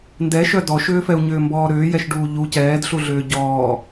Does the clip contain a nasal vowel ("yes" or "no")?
no